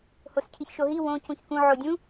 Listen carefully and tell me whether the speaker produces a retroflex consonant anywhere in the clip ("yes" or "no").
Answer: no